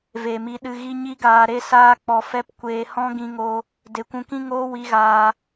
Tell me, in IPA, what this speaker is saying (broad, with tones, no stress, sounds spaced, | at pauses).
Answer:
v e˨ m i˧ ɗ ɨ˧ ɣ i˦ ɲ i˦ ɡ aː˧ ɾ e˦ s aː˦ k͡p ɔ˧ f ɛ˦ p kʷ eː˧ h ɔ̃˦ ɡ ĩ˧ ŋ o˧ | d e˨ kʷ ũ˧ k ĩ˦ ŋ oː˦ w i˦ ɣ aː˧